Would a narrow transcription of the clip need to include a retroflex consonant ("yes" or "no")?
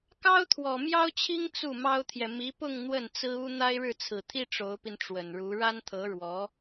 yes